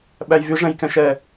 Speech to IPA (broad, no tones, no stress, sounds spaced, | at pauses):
ɓ æ j v y ʐ ɛ̃ j k ɛ̃ ʃ ɛ